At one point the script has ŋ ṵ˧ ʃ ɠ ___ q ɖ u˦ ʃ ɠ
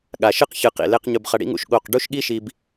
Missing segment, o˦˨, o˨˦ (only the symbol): o˦˨